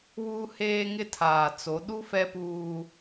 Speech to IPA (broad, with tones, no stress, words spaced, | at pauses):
wuː˦heː˦ŋɪ˦ tʰaː˨t͡so˨˦ɗu˦ fɛ˦puː˦